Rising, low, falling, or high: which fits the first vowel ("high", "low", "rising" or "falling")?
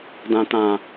low